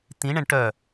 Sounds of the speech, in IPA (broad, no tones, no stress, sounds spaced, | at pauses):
t̪ ĩ ɳ ɛ̃ ɳ ʈ œ